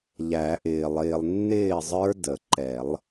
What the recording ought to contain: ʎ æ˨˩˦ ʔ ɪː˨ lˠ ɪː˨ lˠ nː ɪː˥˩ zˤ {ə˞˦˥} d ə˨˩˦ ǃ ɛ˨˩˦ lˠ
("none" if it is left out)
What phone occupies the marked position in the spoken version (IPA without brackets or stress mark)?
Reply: ə˞˦˥